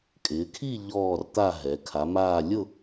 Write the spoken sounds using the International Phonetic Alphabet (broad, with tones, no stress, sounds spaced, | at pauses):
kʼ ɪː˩˧ kʰ i˦˨ ʎ ɔː˦˨ r t̪ a˦˨ ɦ ɛ˩˧ kʰ a˩˧ m aː˦˨ lʲ ʊ˦˨